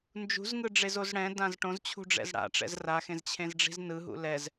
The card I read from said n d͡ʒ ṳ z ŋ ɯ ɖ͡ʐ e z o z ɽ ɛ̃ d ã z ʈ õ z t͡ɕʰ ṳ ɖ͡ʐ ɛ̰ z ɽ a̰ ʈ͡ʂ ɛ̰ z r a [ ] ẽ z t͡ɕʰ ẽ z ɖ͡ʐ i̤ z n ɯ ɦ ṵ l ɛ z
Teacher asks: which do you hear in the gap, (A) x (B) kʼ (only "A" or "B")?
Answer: A